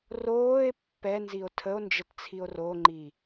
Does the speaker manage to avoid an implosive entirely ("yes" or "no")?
yes